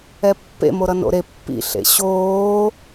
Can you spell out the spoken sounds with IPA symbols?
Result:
ɛ pː ḛ m o ɾ ʌ n o̰ ɾ e pː ḭ ɬ ḛ ɕ oː

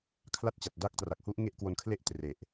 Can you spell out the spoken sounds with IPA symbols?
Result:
kʰ l a˥˩ t̚ t͡ɕ a˨˩ t̚ d a˦˥ k̚ t r a˨˩ k̚ h u˦˥ ʔ ŋ e˥˩ ʔ k w o˧ n kʰ l e˥˩ ʔ t r e˨˩ ʔ

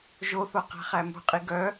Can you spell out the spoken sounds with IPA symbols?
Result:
ʒ o θ o q æ̤ χ æ m ṳ qʼ i ɡ œ

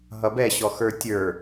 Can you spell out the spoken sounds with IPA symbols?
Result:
ɦ ʌ b ɛ ɕ ɔ x ə˞ tʲ ə˞

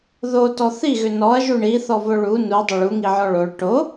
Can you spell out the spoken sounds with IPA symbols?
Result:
ð o t ɔ θ i ɣ ʏ n ɔ ɐ̯ ʒ u ɳ i θ ɔ v o ɭ u n u dˤ ʏ ɭ u ŋ i ʕ ɔ ɭ o ɭ ʈ o

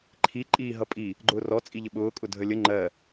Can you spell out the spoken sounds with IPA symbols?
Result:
ǃʰ i ǃʼ iː ɦ ʌ pʼ i | ɡ͡ǃ ʊː r ɔ t͡sʼ i ʎ ə ɓ ʊː kʼ ʊ dʱ ə lʲ ə ŋ͡ǃ ɜ

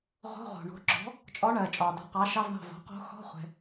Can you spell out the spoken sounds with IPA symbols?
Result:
ʁ o̤˧˥˧ ʁ o̤˩ ɳ o̤˩˥ ǁ ɔ̤˩˥ | t͡ʃʼ ɔ˧˥ ɳ ɜː˩ t͡ʃʼ ɒː˩ d ɔ̤˩˥ q ɑː˩˥ ʃ ɑ˧˥˧ v ɳ ɑ̤˧˩ v o̤˩˥ q o̤˧˥ x ɔ̤˧˥˧ χʷ ɛ̤˩

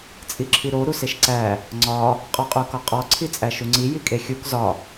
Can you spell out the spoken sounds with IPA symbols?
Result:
t͡sʼ i ǁʰ i ɾ o ɾ u s e ʃ ǀ æ | ŋ͡ǀ ɒ | qʼ ɒ qʼ u k ɒ qʼ ɒ ǀʰ i t͡sʼ æ ʃ u ŋ͡ǀ i j i kʼ e xʲ u k z ɒ

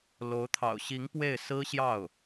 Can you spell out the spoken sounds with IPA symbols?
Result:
l o˧˥ ʊ̯ t̪ʰ ɑ̰˨˩ ʊ̯ ɕ i˧˥ ŋ p w e˥˩ ɪ̯ s ɹ̩˥ ɕ j ɑ˥˩ ʊ̯

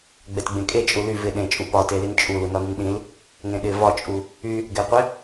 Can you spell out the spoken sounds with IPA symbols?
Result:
ɡ͡b ɛ t ɡ͡b ẽ kʼ e t͡ʃʼ u l y v ɪ ɗ ẽ t͡ʃʼ u p ɒ t e l i n t͡ʃʼ u l u n ɒ n y n ɗ ĩ l | ŋ ẽ ɗ ɪ v ɒ t͡ʃʼ u | y | ɡ ɛ qʷ ɛ

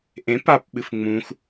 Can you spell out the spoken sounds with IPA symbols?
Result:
ʔ ẽ p a p ɓ ɨ f ŋ͡m ũ x

